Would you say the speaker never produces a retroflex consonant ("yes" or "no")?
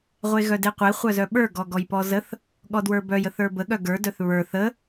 yes